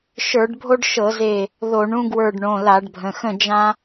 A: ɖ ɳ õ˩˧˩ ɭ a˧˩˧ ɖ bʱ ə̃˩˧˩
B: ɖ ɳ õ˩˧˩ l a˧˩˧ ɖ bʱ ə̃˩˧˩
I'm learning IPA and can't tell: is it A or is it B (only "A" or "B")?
B